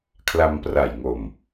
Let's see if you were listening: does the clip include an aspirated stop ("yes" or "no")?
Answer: yes